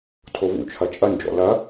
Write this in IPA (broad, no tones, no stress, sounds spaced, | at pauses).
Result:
tʰ o v ṵ t͡ʃʰ ɐ t͡ʃʼ ɐ n d͡ʒ ɔ̰ l ɐ